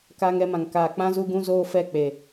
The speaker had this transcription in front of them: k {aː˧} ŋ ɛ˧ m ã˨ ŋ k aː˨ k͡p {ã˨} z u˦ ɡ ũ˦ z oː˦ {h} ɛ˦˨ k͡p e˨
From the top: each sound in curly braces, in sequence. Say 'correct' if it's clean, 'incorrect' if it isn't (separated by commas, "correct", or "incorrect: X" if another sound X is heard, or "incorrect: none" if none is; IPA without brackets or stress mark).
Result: correct, incorrect: ã˦, incorrect: f